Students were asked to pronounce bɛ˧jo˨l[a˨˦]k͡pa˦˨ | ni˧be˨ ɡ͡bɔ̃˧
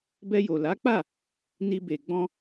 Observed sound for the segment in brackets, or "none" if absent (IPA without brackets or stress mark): a˨˦